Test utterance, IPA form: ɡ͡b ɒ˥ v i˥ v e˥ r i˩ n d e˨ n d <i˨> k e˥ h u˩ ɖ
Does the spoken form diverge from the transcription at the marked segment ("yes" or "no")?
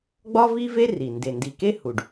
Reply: no